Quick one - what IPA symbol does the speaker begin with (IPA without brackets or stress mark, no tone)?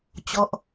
t͡ɕ